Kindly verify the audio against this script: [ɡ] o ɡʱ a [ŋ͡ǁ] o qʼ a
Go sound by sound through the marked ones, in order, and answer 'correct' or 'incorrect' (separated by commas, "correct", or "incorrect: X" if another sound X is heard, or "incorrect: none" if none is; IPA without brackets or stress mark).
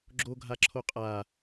incorrect: ɡ͡ǁ, incorrect: ǁʰ